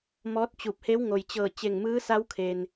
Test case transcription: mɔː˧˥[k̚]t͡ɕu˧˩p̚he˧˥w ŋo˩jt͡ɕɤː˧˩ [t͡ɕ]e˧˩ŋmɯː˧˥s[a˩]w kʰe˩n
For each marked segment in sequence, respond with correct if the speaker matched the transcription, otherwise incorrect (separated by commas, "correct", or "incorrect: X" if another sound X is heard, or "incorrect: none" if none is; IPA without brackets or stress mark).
incorrect: t̚, correct, incorrect: a˧˥